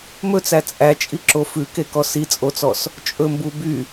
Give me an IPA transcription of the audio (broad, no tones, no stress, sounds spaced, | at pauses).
m ɵ t͡s æ t͡sʼ æ t͡ʃʼ i ǁ o f ʉ k e k ɔ s i t͡sʼ o t͡s ɔ s | t͡ʃʼ ɵ m b u b y